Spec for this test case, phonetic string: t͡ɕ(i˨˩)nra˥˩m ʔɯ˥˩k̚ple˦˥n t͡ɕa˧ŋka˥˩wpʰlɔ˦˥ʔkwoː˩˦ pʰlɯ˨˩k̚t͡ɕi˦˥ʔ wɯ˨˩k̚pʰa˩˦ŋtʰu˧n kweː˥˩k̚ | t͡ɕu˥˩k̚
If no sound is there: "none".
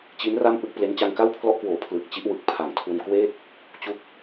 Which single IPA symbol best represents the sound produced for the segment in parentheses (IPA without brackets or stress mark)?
i˦˥